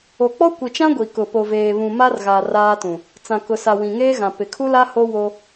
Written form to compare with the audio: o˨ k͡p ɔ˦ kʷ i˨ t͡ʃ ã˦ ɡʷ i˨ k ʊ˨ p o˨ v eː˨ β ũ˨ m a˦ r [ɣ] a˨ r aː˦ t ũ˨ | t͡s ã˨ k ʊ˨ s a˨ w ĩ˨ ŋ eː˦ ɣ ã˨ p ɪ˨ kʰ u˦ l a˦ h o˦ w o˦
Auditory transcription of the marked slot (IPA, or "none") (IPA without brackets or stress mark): ɣ